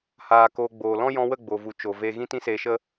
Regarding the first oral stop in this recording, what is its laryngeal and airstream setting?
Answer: plain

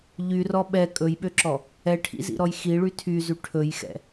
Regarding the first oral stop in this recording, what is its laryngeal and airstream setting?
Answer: implosive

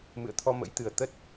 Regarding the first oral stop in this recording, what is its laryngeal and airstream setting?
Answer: aspirated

